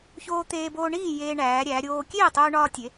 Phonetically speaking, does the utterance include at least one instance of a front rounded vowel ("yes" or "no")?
no